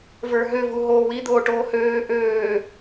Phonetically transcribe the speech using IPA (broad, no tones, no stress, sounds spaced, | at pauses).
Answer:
v ə˞ ɦ ø v u ɦ oː w i d̪ oː ʈ oː h øː ʔ øː